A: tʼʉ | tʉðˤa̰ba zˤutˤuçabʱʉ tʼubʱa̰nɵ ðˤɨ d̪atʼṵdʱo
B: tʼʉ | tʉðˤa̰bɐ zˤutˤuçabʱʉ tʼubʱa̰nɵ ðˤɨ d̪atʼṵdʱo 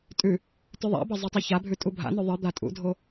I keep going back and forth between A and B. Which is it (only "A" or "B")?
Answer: B